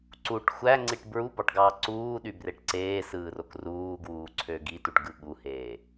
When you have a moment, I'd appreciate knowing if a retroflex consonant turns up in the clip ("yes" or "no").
yes